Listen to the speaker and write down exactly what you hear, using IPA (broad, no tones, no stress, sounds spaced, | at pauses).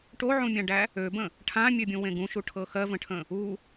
ʈ o ʕ ũ mʲ ã ɖ æ | ø b ə̃ | ʈʰ ã mʲ ø bʲ ũ w ẽ ɡ ũ ʃ u ʈʰ ɤ x ɜ v ə̃ ʈʰ ə̃ | u